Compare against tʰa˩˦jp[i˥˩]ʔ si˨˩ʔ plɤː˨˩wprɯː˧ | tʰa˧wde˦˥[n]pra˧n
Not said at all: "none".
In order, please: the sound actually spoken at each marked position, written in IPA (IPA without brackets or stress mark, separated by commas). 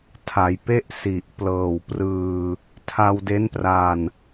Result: e˥˩, n